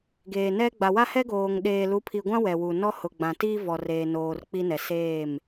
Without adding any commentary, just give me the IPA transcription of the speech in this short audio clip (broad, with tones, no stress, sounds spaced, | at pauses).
ɡ eː˨ n ɛ˦ ɡ͡b a˨ w a˦ h ɛ˦ ɡ oː˨ ŋ ɗ eː˨ l u˨˦ pʰ i˨ ɡʷ ã˦ w ɛ˨ w u˨ n ɔ˦ h ʊ˨ ɡ͡b ã˨ t i˦ v ɔ˨ r eː˨ n oː˨ r k͡p i˦ n ɛ˨ s eː˦˨ m